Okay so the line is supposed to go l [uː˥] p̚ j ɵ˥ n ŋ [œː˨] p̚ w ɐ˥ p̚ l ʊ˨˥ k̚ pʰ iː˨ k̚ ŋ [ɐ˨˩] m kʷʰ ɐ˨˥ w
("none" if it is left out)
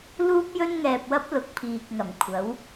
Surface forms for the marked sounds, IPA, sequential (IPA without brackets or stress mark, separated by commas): uː˥, ɛː˨, ɐ˨˩